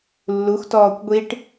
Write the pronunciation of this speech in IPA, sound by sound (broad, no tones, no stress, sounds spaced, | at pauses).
lː u x t ɔː kʷ ɡʷ i ʈ